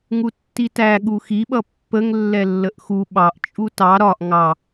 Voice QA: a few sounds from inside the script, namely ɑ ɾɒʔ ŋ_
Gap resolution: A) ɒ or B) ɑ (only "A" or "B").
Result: B